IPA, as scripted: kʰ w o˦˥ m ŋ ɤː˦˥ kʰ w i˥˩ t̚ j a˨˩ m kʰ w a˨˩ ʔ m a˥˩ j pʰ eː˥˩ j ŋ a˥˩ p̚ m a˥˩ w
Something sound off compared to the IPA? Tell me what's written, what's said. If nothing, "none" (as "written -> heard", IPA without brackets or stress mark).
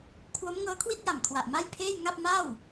none